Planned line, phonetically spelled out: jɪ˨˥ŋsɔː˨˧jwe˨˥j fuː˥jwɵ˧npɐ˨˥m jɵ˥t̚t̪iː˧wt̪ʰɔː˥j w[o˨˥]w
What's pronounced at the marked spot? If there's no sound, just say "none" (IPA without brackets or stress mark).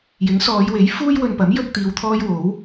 o˨˥